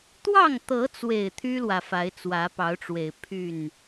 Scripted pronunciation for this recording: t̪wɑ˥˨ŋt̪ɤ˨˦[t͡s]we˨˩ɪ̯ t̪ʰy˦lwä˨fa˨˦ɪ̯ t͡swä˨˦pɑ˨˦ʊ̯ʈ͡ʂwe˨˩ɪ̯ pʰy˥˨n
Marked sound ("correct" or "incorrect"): correct